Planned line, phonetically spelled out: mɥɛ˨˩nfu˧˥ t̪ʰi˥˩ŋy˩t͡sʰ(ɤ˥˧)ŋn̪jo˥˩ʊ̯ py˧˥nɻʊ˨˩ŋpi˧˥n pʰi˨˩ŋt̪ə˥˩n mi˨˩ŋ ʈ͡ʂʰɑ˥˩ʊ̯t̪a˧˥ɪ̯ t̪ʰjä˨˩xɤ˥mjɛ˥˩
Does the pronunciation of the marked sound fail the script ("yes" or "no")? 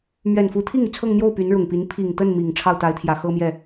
no